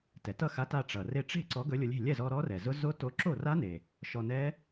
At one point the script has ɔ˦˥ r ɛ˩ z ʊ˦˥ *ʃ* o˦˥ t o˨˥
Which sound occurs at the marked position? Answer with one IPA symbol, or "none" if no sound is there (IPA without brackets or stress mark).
z